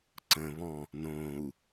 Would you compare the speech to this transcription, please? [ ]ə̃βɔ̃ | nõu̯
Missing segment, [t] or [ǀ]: ǀ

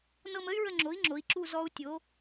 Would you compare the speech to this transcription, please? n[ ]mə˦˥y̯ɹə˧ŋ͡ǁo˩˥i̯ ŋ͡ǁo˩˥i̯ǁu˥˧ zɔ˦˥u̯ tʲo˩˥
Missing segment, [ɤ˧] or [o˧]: ɤ˧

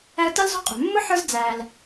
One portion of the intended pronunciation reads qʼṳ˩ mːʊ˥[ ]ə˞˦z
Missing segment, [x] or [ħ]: ħ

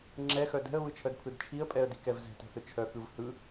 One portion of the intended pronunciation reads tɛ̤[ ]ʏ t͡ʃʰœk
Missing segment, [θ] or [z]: θ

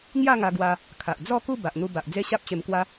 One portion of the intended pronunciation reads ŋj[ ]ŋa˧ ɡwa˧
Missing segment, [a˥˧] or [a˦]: a˥˧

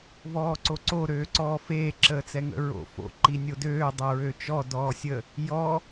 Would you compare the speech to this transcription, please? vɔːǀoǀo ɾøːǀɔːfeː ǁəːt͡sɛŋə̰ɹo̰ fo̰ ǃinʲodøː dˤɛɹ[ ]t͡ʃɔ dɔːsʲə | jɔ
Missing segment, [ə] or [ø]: ø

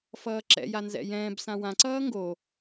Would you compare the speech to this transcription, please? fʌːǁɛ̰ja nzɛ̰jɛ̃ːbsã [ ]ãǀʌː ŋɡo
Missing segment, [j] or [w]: w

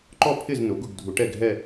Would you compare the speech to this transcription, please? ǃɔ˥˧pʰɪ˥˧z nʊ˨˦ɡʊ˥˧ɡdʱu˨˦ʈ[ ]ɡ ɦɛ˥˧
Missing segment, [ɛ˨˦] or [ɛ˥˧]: ɛ˥˧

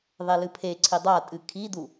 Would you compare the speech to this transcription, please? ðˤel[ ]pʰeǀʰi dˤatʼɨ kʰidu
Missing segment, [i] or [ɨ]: ɨ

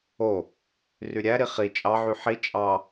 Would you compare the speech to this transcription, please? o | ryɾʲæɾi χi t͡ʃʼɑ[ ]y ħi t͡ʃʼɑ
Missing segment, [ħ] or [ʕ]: ʕ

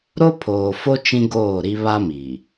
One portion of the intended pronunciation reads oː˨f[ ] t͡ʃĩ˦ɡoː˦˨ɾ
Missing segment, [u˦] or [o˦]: o˦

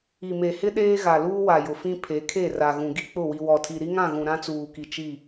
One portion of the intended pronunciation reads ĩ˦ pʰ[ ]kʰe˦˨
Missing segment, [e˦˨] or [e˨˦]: e˨˦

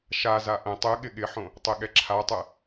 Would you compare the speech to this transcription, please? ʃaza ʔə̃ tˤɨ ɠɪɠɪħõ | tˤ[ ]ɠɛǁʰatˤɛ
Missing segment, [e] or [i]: e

